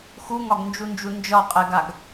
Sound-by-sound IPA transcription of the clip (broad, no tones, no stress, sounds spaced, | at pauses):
x u ŋ ɒ ɡ n d͡ʒ u n d͡ʒ u n d͡ʒ ɒ qʼ ɛ ɡ a ɡ